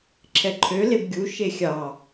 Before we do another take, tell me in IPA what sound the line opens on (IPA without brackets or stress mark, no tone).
ǁʰ